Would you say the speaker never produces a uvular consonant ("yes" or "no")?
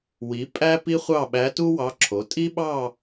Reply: no